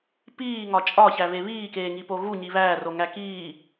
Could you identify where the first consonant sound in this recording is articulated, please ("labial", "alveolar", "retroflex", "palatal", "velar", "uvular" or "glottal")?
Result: labial